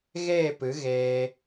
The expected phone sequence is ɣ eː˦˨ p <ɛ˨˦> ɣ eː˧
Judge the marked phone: incorrect: ɨ˨˦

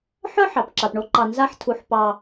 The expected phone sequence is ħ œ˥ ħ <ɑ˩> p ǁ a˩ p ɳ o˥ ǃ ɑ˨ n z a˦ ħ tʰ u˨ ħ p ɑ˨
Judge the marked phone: correct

